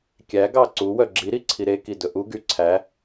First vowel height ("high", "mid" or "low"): low